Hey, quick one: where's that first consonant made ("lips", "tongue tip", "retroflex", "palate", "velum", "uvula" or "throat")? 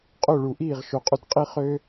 uvula